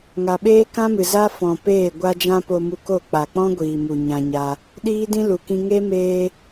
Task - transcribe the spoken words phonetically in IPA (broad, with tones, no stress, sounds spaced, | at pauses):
ŋ a˨ ɓ eː˦ k ã˦ m ɨ˨ z a˦ f ɔ̃˨ p eː˦˨ ɡʷ a˧ d͡ʒ ã˧ p o˧ m u˧ k o˦˨ k͡p a˨ k͡p ɔ̃˦ ɡʷ iː˨ m u˨ ɲ ã˧ ɲ a˧ | ɗ iː˦ d ĩ˦ l u˨ k ĩ˧ ŋ e˦ m eː˧